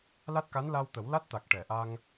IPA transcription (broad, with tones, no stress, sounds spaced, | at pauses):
l a˦˥ t̚ k a˧˥ n l a˧ w t̪ ə˨˩˦ w l a˦˥ t̚ t̪ a˨˩ k̚ ʈ ɛ˨˩˨ ʔ a˧ ŋ